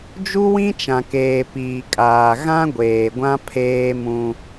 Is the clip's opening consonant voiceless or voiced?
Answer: voiced